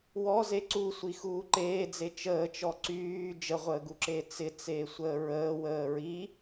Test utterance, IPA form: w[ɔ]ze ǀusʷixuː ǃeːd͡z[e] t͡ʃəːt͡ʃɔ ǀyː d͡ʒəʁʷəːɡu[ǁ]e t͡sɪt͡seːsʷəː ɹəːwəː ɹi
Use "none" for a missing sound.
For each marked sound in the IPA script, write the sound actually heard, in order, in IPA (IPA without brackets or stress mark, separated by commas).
ɔ, e, ǁ